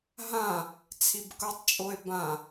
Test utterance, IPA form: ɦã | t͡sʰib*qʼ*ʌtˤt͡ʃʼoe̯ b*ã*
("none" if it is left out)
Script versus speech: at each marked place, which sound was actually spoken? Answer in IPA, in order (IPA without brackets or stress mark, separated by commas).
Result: k, ã